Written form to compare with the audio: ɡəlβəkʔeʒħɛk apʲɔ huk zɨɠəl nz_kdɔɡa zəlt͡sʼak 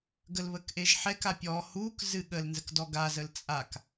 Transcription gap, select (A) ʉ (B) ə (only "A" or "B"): B